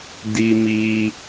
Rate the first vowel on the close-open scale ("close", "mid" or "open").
close